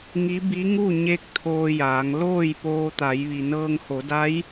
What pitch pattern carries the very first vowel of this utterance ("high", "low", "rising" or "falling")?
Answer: rising